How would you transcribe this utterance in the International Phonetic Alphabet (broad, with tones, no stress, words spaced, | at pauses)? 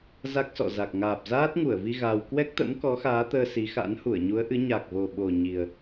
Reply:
za˦˥k̚sɔ̰˧˨za˨˩k̚ ŋaː˨˩p̚zaː˦˥t̚ŋu˧˩ə̯vi˧ ɣa˧w kwɛ˦˥k̚t̪ə̰˧˥m kɔ˨˦xaː˨˦t̪əː˧ si˨˦xa̰˧˥n hu˧˩ə̯ɲu˨˦ə̯ʔɨ˨˦ ɲa˨˩k̚vo˨˩ɓo˨˩ ɲi˨˩ə̯